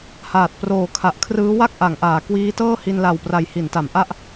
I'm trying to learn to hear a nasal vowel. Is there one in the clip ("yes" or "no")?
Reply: no